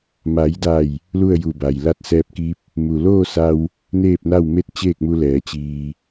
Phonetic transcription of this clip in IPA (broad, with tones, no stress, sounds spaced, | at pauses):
m a˩˧ j d a˧˩ j | l u˥˨ ə̯ j u˧˩ b a˩ j l a˧ t̚ s ɛː˧ p̚ k i˧˥ p̚ | m u˩ l oː˥˨ s a˧ w | n eː˥˨ p̚ n a˥˨ w m e˥˨ t̚ t͡ɕ eː˥˨ k̚ m u˧ l ɛː˩˧ t͡ɕ iː˧